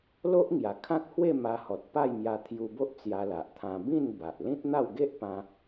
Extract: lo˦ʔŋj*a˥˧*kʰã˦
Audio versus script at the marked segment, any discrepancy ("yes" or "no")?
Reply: yes